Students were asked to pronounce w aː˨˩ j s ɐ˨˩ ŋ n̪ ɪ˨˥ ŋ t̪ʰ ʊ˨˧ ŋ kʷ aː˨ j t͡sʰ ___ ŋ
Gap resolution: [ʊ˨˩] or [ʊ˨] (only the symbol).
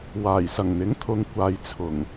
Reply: ʊ˨˩